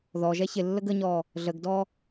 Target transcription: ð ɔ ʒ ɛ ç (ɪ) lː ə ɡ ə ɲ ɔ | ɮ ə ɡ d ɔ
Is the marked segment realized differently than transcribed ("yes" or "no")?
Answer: no